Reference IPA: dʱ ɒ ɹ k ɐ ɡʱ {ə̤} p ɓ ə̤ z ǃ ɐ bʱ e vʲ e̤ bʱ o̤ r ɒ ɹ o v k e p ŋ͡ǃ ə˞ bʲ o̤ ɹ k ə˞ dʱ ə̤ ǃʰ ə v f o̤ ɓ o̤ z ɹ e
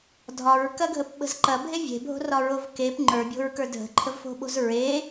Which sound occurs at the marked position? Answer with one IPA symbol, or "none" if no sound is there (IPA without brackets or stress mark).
ə